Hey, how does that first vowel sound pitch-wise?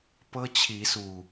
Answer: high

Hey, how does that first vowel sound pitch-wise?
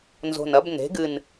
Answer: low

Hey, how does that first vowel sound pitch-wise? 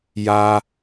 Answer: high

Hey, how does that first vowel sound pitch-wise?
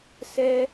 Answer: high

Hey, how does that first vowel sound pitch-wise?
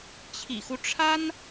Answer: low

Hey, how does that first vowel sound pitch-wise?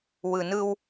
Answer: low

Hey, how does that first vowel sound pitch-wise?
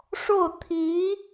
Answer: falling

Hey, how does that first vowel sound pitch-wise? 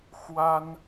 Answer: high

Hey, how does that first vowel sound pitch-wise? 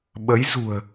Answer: rising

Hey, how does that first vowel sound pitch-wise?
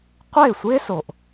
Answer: falling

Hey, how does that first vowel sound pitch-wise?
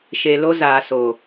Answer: low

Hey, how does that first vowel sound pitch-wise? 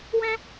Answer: high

